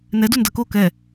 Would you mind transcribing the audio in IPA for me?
n ɛ d u n d ɐ k o k ɛ

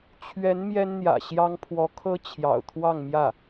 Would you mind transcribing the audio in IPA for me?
t͡ɕʰ ɥ ɛ˧˥ n m j ɛ˥ n n̪ j ä̰˨˩ ɕ j ɑ˥ ŋ pʰ w ɔ˧˥ kʰ ɤ˥ t͡ɕʰ j ɑ̰˨˩ ʊ̯ t̪ʰ w ɑ˥˧ ŋ m j ä˥˩

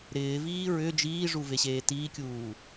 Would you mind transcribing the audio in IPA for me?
ɾ ɪː v iː ɹ ʏ d͡ʒ iː ʐ u v e ɕ eː t iː kʲ uː

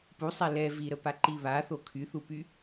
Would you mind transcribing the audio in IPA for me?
p u sˤ ɛ l ɛ v i ɾ ə p a ǃ i β a θ o kʰ y θ u p y

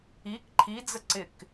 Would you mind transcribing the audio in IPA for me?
i k ǃʰ i d͡z ə ǀ ɪ k

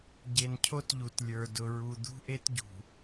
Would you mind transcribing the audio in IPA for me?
ɟ e˨ n cʰ o˦ t ʎ u˨ t lʲ ə˞˨ d ʊ˨ ɹ u˨ d̪ ṳ˦ ʔ e˦ t ɟ ṳ˨

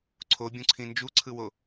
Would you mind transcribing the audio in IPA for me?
ǀʰ o bʲ ũ ǀʰ ĩ n d͡ʒ u ǀʰ ɯ w o

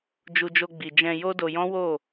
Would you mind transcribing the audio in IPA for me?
d͡ʒ u˧ d͡ʒ o˧ ɡ͡b i˨ d͡ʒ ɛ̃˧ j o˦ d o˧ j ɔ̃˦ w o˦˨

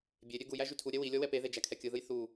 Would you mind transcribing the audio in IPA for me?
bʲ e ɾʲ ø ɡ u j æ ʒ y tʰ u ɾʲ ɛ w i lʲ ɔ w ɛ p e ð e d͡ʒ æ kʰ ɛ kʲ ɯ ð ɯ j θ u

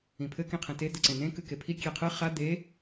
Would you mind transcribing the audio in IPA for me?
ĩ pʰ ɘ k ĩ qʰ ẽ t e d̪ ɘ ǀ ẽ n ẽ k ɨ k e pʰ i kʲ e qʰ ɨ χ a d̪ e

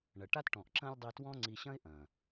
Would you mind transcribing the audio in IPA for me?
ɳ ɐ˨ ʈ a˦ t ʈ ɔ̃˨ ʔ ǁ ɐ̃˦ lʲ dˤ i˧ t w ɔ̃˦ ŋ͡ǀ i˧ ɕ ɐ̃˦ ɪ̯ ʔ ɐ̃˨

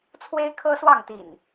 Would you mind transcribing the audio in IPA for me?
t͡sʰ w e˦ ɪ̯ kʰ ɤ˦ s w ɑ˥˨ ŋ t̪ ḭ˨˩ n

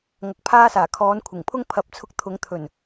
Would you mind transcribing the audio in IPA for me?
ŋ ɐ˨˥ k̚ pʰ aː˥ s aː˨˩ kʰ ɔː˨˥ n kʷʰ ɪ˨˩ ŋ pʰ ʊ˥ ŋ pʰ ɐ˨˥ p̚ t͡sʰ ʊ˧ k̚ t̪ʰ ʊ˨˥ ŋ t̪ʰ ɵ˨˩ n

